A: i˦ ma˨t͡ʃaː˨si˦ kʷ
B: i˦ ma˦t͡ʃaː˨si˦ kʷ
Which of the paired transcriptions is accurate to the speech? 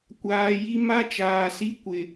B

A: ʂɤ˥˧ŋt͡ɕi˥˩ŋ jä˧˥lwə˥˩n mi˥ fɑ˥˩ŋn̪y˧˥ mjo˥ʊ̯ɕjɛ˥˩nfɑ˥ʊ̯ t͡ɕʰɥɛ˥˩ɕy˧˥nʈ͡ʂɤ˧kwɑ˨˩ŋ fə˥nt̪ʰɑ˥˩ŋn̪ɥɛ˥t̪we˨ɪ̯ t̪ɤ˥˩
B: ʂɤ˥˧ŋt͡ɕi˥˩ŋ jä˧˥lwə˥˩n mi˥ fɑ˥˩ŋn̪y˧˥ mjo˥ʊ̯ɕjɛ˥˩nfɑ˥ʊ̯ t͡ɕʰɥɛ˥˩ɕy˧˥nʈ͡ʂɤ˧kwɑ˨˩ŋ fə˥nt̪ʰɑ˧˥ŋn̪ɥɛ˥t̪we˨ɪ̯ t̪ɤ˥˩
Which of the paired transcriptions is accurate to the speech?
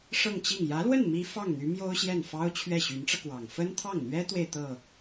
A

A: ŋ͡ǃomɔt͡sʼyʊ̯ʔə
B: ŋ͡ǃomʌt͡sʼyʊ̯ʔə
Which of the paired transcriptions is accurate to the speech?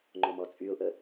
A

